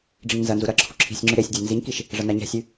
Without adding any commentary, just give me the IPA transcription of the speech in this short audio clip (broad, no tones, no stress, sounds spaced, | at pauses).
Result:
ɖ͡ʐ i ŋ n z ɐ n z u ɾ ɐ ǁʰ u ǁʰ i̤ sʲ ŋ͡ǁ ʉ ɾ e sʲ dʲ a n z i ɲ k i ʃ | ʐ ɐ n a ɲ a̤ sʲ ʉ